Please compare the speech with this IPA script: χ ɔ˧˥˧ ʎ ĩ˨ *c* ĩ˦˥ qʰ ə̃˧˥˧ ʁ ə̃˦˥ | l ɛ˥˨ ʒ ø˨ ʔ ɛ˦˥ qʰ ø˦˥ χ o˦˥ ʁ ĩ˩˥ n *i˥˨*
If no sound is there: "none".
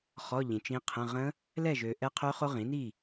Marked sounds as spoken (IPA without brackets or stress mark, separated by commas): t͡ʃ, i˥˨